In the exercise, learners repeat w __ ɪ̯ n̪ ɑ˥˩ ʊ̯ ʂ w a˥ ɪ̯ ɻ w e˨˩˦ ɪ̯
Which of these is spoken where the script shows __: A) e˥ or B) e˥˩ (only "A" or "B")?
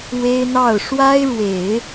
A